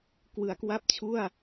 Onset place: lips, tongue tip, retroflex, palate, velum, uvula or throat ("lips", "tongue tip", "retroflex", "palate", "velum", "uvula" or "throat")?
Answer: velum